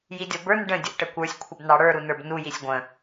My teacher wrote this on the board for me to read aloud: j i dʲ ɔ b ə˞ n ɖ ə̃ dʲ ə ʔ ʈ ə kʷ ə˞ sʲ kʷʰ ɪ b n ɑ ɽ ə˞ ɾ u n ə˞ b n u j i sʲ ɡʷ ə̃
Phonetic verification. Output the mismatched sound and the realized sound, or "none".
none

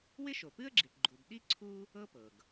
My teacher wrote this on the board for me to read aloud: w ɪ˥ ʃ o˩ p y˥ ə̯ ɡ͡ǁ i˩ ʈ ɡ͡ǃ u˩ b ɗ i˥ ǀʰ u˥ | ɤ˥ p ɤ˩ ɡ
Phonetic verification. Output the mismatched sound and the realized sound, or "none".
y˥ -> ɨ˥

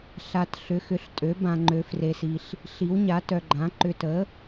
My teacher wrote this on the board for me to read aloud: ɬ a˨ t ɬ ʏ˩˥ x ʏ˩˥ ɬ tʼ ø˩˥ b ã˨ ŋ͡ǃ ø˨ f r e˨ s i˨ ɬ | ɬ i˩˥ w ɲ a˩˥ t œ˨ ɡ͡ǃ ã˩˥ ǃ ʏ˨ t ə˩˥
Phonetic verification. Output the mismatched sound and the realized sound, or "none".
none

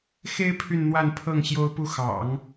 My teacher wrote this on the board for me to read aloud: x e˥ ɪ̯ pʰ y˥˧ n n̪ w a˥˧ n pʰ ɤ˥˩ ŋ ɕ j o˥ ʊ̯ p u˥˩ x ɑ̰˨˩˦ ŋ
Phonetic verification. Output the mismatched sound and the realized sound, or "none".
none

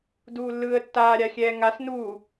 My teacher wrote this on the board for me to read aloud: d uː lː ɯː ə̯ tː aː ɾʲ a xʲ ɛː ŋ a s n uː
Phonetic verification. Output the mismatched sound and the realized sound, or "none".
none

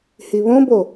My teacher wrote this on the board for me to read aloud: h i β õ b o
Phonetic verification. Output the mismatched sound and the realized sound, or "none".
none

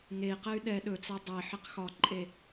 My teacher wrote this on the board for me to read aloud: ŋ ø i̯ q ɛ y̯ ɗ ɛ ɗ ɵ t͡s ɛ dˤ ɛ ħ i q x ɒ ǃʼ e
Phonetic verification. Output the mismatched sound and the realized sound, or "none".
ø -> e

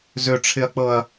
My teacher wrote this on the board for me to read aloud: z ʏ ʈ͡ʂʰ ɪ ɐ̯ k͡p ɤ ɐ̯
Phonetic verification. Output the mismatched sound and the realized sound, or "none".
none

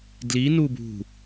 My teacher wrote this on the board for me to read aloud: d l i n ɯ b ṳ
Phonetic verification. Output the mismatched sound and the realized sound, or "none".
ɯ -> u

